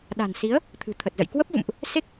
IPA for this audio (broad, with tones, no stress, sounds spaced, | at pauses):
ɗ a̤˨˩ n s i˨˦ ə̯ | t̪ʰ ɨ̤˨˩ t̪ʰ ə˨˩ t̚ z ə̰˧˨ j k w ə˦˥ p̚ v ṵ˧˨ m ʔ | s e˦˥ k̚